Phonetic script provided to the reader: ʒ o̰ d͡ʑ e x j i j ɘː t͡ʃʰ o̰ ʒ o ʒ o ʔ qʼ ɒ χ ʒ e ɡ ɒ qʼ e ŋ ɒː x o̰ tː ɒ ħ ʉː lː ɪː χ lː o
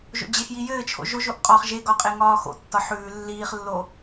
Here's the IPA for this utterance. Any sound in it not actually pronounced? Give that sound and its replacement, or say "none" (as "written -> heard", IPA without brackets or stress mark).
ɪː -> iː